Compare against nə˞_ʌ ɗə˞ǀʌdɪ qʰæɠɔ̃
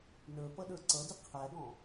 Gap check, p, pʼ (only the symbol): p